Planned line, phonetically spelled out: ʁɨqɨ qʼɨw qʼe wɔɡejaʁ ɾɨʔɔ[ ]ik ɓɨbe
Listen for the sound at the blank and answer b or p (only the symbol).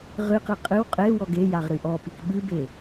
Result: p